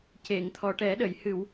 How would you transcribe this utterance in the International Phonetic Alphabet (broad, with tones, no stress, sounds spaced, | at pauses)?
c e˨˩˨ ŋ t̪ʰ ɔ˨˩ ʈ ɛ˨˩˦ ɗ ə˨˩˨ j h ɨ˨˩˨ w